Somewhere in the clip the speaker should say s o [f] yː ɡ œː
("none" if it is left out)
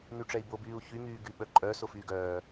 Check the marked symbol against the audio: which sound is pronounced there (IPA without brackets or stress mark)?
f